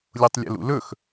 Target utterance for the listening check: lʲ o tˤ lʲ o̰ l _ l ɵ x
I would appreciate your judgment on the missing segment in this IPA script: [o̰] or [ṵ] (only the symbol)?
ṵ